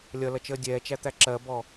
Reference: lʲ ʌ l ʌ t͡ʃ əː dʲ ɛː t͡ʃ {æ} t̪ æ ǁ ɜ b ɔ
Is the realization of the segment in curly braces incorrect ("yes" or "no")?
no